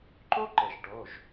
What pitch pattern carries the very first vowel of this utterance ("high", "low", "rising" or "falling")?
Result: high